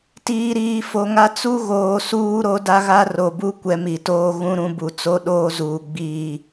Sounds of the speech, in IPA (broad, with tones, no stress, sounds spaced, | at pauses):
t iː˨ ɾ iː˨ f o˨ ŋ a˦ t͡s u˦ ɣ oː˨ s uː˦ ɾ o˦ d a˦ ɣ a˦ r o˨ b u˦ kʷ ɛ˦ m i˨ t oː˦ ɣ ũ˦ ɾ ũ˦ b u˨ t͡s o˦ ɗ oː˦ z uː˨ ɡ͡b iː˦˨